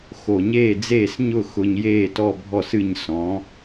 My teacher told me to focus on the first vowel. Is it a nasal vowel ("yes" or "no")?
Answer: no